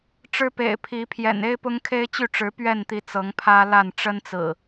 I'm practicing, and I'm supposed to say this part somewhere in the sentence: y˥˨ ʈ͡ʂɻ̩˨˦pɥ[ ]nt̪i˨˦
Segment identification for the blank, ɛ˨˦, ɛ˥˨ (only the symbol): ɛ˥˨